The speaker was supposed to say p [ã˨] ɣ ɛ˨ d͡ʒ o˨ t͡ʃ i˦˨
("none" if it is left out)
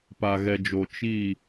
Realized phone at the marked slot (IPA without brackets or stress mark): a˨